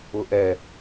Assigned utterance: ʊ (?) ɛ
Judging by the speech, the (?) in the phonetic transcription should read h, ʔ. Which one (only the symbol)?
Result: ʔ